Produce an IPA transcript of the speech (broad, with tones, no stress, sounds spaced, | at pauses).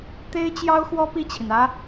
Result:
t̪ e˥ ɪ̯ t͡ɕ j ɑ˥ ʊ̯ x w ɔ˥ p i˥˩ t͡ɕʰ i˩ n ä˥